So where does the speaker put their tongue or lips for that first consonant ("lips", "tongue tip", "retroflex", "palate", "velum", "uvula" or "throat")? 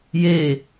palate